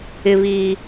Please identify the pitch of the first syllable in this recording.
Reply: high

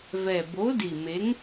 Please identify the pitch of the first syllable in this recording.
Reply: low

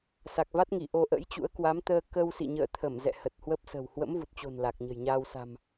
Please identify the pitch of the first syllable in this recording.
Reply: low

